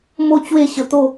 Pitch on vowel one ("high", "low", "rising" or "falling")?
falling